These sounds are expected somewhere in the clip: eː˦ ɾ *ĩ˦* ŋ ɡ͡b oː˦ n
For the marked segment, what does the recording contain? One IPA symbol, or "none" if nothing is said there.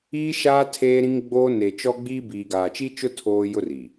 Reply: ĩ˦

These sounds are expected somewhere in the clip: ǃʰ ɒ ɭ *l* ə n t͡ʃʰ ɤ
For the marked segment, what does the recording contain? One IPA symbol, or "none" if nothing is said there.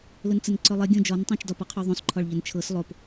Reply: ʎ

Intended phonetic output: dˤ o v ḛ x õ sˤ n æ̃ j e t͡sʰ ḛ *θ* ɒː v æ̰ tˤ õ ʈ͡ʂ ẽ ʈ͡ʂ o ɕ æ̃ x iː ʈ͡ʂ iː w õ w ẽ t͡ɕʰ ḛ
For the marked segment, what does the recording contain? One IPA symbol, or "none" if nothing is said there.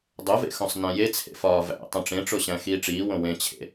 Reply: f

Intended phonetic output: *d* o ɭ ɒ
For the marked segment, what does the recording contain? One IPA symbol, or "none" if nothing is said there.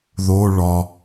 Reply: ð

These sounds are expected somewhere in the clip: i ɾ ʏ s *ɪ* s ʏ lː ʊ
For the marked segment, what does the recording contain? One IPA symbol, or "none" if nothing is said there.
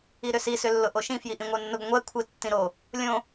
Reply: i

